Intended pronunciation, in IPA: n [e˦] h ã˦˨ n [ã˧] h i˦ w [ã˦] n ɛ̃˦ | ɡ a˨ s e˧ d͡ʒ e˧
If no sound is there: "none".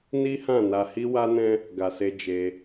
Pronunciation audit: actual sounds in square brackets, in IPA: i˦, a˧, a˦

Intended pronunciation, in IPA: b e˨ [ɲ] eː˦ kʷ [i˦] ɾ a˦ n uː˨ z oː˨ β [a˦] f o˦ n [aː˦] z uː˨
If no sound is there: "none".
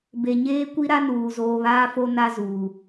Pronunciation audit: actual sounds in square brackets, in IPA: ɲ, i˦, aː˦, a˦

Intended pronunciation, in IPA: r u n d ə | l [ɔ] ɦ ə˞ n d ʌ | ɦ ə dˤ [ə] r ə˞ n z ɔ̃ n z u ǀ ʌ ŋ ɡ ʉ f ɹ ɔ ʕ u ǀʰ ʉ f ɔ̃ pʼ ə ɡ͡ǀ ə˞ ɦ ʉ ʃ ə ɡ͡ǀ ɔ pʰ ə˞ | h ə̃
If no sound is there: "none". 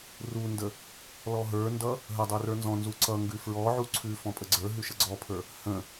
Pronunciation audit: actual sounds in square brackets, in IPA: ɔ, ə˞

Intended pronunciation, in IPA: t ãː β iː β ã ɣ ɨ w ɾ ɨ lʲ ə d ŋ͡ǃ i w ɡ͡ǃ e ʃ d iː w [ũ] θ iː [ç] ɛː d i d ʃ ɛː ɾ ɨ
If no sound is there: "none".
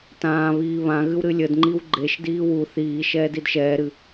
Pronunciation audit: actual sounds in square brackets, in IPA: u, ʃ

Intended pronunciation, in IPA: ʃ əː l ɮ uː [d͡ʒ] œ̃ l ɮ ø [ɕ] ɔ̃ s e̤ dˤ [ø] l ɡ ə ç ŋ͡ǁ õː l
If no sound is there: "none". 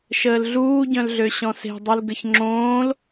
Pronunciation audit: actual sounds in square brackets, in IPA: ɟ, ɕ, u

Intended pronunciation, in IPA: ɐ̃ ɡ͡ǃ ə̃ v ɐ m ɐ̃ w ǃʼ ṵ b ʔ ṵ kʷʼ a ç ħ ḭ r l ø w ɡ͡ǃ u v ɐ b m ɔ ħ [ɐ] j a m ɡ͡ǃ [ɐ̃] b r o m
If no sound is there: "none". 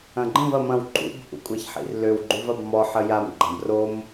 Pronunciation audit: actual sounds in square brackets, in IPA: ə, ã

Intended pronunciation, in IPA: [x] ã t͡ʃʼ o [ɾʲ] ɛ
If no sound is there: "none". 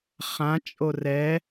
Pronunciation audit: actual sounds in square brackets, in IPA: χ, r

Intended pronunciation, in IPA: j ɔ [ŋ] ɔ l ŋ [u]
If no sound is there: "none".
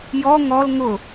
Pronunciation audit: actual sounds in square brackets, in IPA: ŋ, ʊ

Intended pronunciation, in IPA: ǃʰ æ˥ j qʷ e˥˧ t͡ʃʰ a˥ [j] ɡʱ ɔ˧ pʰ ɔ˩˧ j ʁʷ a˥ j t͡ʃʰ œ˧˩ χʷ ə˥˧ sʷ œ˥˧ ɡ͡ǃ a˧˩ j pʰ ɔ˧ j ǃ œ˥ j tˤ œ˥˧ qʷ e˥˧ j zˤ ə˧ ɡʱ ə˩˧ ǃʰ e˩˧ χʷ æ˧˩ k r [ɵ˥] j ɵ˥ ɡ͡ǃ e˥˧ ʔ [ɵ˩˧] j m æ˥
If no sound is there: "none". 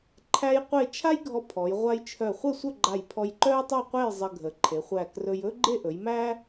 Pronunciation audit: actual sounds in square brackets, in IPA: j, ɵ˧, ɵ˩˧

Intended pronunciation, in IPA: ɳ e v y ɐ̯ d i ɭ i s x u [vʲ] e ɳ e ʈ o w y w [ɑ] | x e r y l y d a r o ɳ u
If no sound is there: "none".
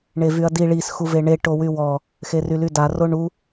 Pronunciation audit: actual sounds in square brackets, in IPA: v, ɔ

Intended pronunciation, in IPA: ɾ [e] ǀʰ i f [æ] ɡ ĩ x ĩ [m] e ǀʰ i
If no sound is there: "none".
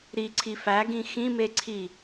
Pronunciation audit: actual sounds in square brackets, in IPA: i, æ, m

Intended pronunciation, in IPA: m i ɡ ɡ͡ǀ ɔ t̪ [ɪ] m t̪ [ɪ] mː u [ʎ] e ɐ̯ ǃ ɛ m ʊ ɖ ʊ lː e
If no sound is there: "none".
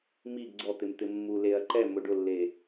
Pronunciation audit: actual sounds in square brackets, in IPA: ɪ, ɪ, l

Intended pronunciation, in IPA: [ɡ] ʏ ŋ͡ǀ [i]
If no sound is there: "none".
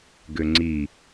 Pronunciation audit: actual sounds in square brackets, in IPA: ɡ, i

